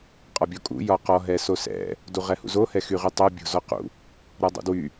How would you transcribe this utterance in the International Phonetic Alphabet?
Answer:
qʼɒbʲɔkʼṵ jɒqɔ ɦɛsosɛ̰ | duʁɛhṵzo hɛxyʁytˤo bʲo̤zɔqṵ | ɾɔdˤṵdwy

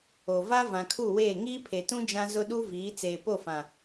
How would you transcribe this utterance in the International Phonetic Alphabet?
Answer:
o˨va˦ vã˨kʰu˦˨weː˦˨ ŋiː˦pʰe˨tũ˦ d͡ʒã˦ zʊ˦ɗu˦viː˨˦ t͡seː˨po˦˨fã˨

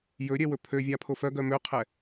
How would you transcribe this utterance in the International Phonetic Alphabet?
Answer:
jɵɾʲɛ wɵpʰøvʲa pʰofœɡœ møqʰɛ

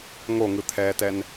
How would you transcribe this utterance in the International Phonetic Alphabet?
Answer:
ŋoŋɯt̪ʰɛːtɛn

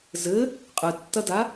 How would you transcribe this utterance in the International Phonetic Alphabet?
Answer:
zɘ | qʼɨtːɐda

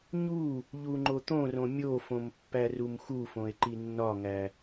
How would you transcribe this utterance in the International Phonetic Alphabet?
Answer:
ɲu | ʎuŋ͡ǃot̪õrõ mʲofõm pːærumxufõe̯ ǃinːɒŋæ

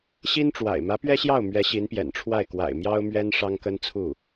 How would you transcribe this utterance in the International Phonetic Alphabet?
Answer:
ɕi˥nʈ͡ʂwa̰˨˩ɪ̯ mä˧˥pɥɛ˥ɕjɑ˥˩ʊ̯ mɥɛ˧˥ ɕi˧˥npjɛ̰˨˩nʈ͡ʂʰwa˥˩ɪ̯ kwa̰˨˩ɪ̯ mjɑ˥ʊ̯mɥɛ˥n ʂɑ˥ŋkə˥nt͡sʰu˥˩

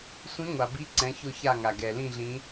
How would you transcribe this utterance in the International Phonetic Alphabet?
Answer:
sʷĩ˨˦ŋʷa˩bi˨˦ ǀɛ̃˨˦çʊ˦˨ça˦˨ ŋa˩ɡɛ˩lĩ˦˨ɮĩ˨˦

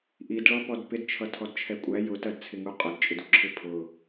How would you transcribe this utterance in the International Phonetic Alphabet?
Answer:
ʔid ɭɔpɔdpɪdt͡ʃʰʌ tʰɔdt͡ʃʰɛkʷʼæ jʊtɜdt͡sʰɪŋu qʼʊdt͡ʃʼɪduǁʰɪ pʰʊ

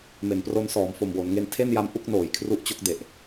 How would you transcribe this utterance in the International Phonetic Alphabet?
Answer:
me˩˦npro˧n sɔː˩˦mfo˨˩mwo˩˦nŋe˧n tʰe˥˩nja˧m ʔu˥˩k̚noː˩˦jkʰru˦˥ʔt͡ɕo˦˥k̚ de˨˩ʔ

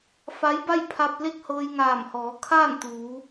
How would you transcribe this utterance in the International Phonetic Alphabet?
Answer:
fa˧˥jba˥˨jpʰa˧p̚ le˥˨k̚hɤː˧j ŋaː˧˩mhɔː˩˧ kʰaː˥˨nt̪uː˩˧

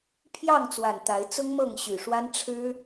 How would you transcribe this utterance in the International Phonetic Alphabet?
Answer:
pʰjɑ˥˨ŋt͡swa˨˩n t̪a˨˦ɪ̯t͡sʊ˦ŋ mɤ˥˨ŋɕy˨˩ʂwa˦n ʈ͡ʂʰɻ̩˦

